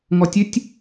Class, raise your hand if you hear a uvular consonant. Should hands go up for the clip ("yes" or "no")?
no